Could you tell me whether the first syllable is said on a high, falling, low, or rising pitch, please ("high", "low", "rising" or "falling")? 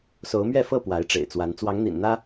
rising